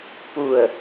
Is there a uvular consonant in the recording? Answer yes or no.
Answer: no